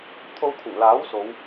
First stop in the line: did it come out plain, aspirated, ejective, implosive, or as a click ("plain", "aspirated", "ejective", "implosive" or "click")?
aspirated